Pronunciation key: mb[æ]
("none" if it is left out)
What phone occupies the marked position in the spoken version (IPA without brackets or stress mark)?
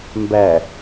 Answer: æ